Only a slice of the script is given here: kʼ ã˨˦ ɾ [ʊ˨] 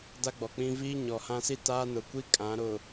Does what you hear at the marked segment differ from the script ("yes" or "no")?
no